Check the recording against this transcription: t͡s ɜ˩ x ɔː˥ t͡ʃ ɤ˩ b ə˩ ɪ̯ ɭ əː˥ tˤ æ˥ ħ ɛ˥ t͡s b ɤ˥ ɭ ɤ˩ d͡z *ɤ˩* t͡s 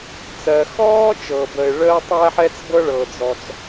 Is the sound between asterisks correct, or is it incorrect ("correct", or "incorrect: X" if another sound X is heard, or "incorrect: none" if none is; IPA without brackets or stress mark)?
incorrect: ɔ˩